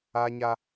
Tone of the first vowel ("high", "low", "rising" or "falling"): high